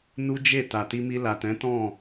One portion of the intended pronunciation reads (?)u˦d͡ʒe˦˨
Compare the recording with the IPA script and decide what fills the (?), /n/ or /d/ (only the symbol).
n